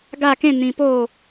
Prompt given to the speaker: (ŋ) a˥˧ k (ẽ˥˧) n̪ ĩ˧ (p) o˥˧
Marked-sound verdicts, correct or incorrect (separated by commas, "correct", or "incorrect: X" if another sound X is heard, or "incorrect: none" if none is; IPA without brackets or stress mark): incorrect: ɡ, correct, correct